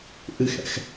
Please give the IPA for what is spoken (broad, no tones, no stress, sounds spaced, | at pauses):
ʔ ɨ x ɛ̰ x